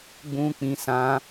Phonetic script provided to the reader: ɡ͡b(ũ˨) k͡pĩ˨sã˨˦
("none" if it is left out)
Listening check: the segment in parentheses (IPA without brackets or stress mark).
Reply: ũ˨